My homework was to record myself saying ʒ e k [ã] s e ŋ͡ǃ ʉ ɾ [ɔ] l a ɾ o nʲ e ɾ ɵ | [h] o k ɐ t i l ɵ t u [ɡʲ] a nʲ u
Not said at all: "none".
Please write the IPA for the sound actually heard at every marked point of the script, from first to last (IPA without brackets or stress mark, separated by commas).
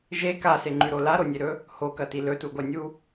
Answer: a, o, h, ɡʷ